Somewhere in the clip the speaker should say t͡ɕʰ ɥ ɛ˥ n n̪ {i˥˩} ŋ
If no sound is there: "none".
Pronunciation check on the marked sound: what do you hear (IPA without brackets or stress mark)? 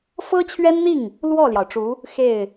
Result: i˥˩